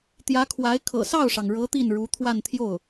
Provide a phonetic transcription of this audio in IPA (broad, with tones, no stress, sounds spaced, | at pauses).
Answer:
t̪ j ä˧˥ kʰ w a˧˥ ɪ̯ kʰ ɤ̰˨˩ s ɑ˥˩ ʊ̯ ʂ ɑ˩ ŋ ɻ ɤ˧˥ t̪ i˥˩ n ɻ u˧˥ t̪ʰ w a˥˧ n t̪ʰ j o˥˩ ʊ̯